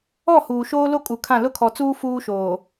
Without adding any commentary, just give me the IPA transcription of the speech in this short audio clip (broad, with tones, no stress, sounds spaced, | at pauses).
ɔ˦˨ h uː˨ ʃ oː˦ l o˦ kʼ u˨ kʰ ã˦˨ l ʊ˦ kʰ ɔ˨ t͡s uː˦ f uː˦ ʃ oː˨